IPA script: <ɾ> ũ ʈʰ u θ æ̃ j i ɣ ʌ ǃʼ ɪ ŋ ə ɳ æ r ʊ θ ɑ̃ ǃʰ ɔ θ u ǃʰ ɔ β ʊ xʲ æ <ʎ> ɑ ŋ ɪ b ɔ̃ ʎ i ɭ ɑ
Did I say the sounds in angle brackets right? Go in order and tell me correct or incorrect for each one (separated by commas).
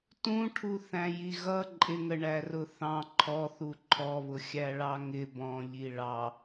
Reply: incorrect, incorrect